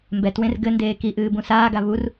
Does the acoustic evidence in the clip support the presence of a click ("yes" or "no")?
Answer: no